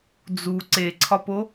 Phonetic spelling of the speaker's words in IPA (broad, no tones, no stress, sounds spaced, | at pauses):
d͡z u ǀ e ǀʰ ɒ p o